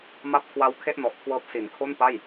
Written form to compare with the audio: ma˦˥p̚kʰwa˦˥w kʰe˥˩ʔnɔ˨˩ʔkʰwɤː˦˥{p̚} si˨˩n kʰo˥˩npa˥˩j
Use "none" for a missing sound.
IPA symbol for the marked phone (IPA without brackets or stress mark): p̚